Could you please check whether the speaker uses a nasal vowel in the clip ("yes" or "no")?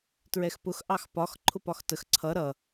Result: no